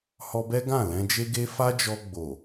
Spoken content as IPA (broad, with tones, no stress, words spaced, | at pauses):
hɔ˧bɛ˦ ɡã˦˨lɛ̃˧d͡ʒe˦ɡe˦ fa˦d͡ʒɔ˧ɡ͡bo˨